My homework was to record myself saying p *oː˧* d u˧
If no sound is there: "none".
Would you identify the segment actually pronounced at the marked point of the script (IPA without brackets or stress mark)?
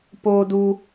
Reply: oː˧